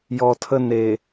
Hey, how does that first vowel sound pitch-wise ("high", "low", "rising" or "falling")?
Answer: low